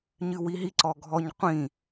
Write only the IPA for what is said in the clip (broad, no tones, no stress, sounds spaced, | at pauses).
ɲ ɨ w i ɦ i ǀ ɔ ɡʱ ɔ ɲ qʷ ĩ